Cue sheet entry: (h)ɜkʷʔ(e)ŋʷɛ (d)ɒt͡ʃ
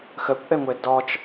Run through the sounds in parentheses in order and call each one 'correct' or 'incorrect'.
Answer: incorrect: x, incorrect: ɛ, correct

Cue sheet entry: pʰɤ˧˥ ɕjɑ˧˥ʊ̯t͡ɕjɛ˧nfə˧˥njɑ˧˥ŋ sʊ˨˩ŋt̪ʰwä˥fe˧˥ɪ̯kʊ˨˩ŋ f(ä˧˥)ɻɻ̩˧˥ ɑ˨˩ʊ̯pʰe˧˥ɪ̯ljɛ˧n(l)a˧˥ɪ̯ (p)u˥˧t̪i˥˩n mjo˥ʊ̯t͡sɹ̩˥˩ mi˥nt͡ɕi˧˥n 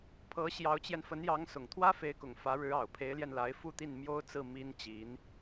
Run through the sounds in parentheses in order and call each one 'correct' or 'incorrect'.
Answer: correct, correct, incorrect: f

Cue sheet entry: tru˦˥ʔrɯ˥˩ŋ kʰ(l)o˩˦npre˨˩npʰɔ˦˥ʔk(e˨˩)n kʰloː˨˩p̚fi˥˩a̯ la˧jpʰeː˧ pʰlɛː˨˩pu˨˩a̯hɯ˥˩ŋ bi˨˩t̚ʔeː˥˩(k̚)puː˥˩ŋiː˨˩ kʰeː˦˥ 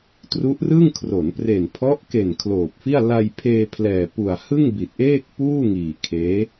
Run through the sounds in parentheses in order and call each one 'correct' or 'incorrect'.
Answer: incorrect: r, correct, correct

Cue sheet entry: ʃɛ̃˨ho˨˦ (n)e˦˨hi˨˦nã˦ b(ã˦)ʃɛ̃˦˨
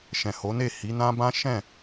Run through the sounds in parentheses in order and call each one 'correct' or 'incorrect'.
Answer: correct, correct

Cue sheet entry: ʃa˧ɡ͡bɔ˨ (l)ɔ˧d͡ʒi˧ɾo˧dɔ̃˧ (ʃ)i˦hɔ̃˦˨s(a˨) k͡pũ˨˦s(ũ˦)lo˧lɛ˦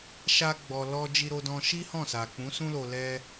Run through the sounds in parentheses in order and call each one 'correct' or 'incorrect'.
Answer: correct, correct, correct, correct

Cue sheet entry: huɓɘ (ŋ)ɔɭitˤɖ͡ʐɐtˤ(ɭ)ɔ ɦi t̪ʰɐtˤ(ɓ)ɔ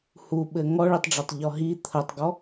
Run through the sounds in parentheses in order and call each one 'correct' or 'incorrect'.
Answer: correct, incorrect: ʎ, incorrect: ɡ

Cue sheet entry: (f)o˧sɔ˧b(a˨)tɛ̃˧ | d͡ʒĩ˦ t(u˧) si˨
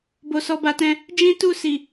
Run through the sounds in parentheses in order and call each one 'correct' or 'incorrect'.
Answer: incorrect: b, incorrect: a˧, incorrect: u˦˨

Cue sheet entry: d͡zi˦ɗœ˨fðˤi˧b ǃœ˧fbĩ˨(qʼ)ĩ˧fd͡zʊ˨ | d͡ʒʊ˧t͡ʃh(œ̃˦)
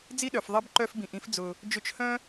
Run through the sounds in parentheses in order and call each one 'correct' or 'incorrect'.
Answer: incorrect: ʔ, correct

